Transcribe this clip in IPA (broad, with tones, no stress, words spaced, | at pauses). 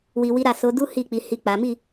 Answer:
wi˧wi˦ɾa˦˨ so˨˦du˦ hi˦˨ k͡pi˨˦hi˦˨k͡pa˨˦ mi˦˨